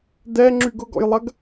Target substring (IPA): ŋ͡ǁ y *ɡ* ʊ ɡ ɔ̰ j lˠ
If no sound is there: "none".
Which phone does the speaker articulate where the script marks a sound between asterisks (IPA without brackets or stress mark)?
ɡ